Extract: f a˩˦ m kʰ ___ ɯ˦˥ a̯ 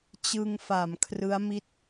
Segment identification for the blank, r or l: r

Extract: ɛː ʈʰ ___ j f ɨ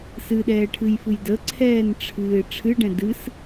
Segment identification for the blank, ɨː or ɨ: ɨ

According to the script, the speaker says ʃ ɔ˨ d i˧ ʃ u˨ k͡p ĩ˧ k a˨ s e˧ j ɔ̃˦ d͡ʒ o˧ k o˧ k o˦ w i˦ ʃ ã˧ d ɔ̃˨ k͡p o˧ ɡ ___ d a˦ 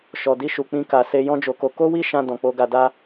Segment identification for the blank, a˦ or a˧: a˧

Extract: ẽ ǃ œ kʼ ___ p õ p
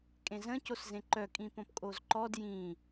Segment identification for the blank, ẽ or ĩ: ĩ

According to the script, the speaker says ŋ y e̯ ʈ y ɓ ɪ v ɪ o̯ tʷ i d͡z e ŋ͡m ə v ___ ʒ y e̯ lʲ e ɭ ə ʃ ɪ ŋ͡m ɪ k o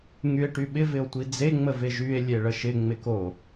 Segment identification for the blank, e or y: e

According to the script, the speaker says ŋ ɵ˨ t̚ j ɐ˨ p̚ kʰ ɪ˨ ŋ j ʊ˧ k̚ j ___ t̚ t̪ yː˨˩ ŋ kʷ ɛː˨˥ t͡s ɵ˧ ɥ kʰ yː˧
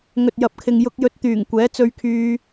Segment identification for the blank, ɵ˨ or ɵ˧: ɵ˧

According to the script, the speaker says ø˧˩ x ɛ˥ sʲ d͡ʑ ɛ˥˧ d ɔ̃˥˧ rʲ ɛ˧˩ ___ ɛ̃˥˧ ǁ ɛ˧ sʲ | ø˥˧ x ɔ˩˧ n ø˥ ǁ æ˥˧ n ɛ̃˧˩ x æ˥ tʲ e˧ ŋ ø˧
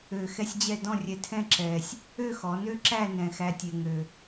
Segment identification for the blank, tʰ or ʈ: tʰ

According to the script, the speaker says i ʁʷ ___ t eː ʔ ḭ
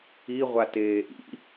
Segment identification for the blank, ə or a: a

